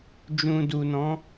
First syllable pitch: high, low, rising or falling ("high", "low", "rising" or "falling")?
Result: low